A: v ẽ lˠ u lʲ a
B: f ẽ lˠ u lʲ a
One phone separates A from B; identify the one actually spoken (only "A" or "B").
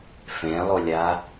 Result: B